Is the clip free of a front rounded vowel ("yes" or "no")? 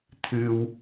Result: yes